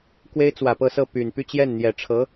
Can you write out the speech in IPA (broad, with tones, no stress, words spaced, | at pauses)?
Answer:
kwe˥ɪ̯t͡swä˨˩pɤ˥˧sɤ˥˩ py˨˩n py˥˧t͡ɕjɛ˥˩nn̪jɛ˨˩ ʈ͡ʂʰɤ˧˥